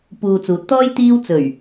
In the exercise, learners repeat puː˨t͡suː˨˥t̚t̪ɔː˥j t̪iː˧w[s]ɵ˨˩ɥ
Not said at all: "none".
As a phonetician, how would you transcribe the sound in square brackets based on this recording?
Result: t͡s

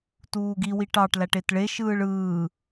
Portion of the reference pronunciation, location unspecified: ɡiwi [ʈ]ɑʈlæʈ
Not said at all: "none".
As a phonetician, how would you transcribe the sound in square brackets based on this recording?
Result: ʈ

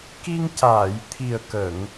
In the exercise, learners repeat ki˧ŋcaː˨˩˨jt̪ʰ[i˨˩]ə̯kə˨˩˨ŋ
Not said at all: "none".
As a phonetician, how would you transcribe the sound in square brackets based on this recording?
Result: i˨˩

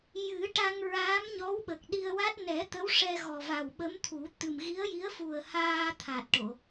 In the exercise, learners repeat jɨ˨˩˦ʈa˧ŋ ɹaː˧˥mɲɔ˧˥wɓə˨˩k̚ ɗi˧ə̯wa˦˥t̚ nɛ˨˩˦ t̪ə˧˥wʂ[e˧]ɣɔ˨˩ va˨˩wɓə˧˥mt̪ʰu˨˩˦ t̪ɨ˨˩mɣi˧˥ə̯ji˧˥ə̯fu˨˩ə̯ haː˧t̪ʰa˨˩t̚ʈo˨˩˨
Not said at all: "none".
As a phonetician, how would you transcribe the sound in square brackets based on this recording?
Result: ɛ˧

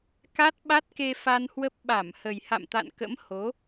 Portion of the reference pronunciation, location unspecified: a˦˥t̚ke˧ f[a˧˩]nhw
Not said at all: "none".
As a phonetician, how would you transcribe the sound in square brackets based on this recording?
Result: a˧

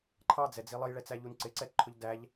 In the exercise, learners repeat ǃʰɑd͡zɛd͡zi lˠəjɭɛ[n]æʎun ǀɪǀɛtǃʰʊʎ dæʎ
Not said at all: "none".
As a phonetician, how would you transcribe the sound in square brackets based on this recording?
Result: t͡s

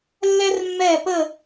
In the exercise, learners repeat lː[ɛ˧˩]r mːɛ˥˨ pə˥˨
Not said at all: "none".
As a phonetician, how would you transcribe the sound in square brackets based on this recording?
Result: ɛ˥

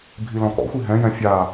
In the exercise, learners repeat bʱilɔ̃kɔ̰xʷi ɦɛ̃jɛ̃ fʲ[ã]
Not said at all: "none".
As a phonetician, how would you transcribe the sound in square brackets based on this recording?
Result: a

